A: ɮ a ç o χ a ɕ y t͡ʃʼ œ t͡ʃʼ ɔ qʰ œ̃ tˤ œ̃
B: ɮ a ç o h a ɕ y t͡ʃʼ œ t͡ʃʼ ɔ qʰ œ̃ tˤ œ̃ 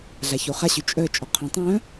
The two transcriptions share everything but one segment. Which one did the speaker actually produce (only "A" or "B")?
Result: A